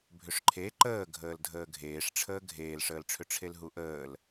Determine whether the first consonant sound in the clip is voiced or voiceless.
voiced